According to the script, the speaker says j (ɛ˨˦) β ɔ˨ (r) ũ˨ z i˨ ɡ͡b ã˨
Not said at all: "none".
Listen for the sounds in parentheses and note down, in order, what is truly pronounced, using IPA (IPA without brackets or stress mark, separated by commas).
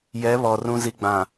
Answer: ɛ˨˦, r